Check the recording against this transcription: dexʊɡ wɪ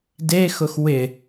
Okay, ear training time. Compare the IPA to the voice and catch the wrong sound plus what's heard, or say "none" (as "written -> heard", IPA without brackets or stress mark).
ɡ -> x